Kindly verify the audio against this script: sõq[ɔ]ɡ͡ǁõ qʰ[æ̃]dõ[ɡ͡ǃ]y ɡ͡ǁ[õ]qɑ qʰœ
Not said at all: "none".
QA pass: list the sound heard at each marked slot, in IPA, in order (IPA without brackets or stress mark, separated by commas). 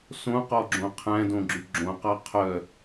ɔ, æ̃, ɡ͡ǁ, õ